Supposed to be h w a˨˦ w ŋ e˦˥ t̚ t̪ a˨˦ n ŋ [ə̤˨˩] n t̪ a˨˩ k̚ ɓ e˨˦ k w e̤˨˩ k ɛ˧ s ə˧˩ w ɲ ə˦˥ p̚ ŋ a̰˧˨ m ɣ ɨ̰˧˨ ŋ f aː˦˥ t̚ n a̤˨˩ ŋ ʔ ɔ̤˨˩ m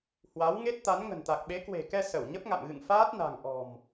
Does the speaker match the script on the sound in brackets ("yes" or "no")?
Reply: yes